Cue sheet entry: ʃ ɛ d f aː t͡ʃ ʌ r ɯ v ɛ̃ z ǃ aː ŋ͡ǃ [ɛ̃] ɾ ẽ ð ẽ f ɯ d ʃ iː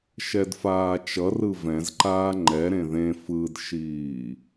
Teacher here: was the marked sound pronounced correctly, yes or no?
no